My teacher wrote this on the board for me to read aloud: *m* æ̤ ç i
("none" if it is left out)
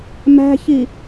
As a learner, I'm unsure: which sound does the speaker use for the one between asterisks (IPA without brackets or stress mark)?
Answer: m